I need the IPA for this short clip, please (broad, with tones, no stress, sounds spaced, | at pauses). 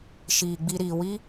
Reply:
ʃ iː˨ ɡ͡b i˧ ɾ iː˨ w i˦